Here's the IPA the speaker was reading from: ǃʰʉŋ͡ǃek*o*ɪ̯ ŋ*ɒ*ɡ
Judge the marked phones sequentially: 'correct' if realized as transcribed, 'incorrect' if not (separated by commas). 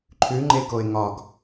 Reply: correct, correct